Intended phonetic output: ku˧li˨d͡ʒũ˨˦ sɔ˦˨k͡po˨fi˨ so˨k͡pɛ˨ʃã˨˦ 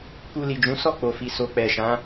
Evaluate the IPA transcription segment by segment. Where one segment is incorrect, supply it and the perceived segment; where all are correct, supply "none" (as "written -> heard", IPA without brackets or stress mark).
none